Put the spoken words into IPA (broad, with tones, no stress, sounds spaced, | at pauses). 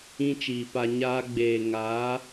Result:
ĩ˦ t͡ʃ iː˨ p a˧ ɲ aː˧ ɡ͡b eː˨ ŋ aː˨˦